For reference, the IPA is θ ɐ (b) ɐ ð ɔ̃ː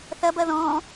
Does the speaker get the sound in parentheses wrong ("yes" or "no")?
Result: no